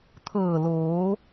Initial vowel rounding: unrounded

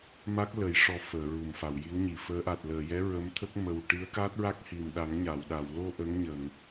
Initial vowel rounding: unrounded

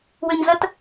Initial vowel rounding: rounded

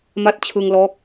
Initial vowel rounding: unrounded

